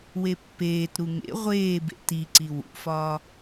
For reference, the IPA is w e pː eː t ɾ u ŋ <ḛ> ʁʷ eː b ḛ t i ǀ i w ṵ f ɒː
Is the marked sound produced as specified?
yes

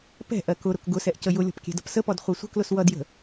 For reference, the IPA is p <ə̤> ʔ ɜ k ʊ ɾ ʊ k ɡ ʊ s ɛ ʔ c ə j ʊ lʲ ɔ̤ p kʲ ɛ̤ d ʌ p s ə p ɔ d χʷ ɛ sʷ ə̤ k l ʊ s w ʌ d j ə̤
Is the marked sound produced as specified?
no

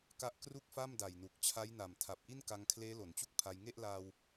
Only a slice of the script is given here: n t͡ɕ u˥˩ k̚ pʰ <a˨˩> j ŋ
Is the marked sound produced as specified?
no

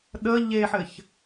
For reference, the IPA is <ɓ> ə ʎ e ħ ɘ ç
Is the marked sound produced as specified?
no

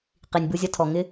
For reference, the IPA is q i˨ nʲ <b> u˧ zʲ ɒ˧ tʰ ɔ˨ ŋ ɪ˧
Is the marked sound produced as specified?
yes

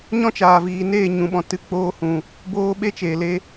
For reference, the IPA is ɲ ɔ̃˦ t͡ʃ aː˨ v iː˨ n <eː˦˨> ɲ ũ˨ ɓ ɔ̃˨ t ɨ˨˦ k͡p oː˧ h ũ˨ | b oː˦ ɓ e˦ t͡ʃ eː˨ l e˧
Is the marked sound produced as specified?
yes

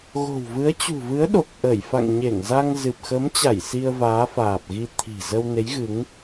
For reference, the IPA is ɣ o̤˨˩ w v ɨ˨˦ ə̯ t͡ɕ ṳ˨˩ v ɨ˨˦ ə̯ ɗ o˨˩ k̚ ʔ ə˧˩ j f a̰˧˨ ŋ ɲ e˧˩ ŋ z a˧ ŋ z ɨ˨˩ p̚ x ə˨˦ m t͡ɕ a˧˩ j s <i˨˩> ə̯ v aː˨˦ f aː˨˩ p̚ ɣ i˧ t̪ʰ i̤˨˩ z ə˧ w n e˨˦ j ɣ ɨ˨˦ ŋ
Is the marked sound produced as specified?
no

